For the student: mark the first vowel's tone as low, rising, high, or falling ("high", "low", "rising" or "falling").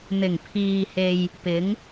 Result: low